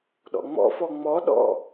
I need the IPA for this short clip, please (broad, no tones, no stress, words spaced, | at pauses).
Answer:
ɗɔ̰ŋ͡mɔ̰fɔ ŋ͡mɔɗɔ̰